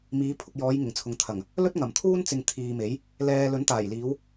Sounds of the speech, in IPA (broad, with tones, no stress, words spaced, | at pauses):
miː˨˧pʰʊ˧k̚jɔː˨˧j ŋɪ˨˩ŋt͡sʰʊ˨ŋ t̪ʰɐ˨˩ŋ | lɵ˥t̚ ŋɐ˨˩mt̪ʰuː˥nt͡sɪ˨ŋ t̪ʰiː˨me˨˥j | lɛː˧ lɵ˨˥nt̪aː˨˩jliː˨˧w